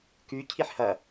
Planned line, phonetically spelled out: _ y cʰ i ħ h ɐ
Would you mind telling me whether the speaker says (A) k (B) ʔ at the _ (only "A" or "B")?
A